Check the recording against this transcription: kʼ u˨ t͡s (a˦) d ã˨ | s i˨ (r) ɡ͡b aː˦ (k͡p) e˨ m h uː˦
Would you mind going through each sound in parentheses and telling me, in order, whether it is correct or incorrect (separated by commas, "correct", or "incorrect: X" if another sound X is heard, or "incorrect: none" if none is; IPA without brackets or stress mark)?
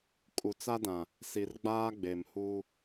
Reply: correct, correct, incorrect: ɡ͡b